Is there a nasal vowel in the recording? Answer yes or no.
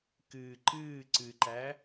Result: no